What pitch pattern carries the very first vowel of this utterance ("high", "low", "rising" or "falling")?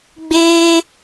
high